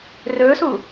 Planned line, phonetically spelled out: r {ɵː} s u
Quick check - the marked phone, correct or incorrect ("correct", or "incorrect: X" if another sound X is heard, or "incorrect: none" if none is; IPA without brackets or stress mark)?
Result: correct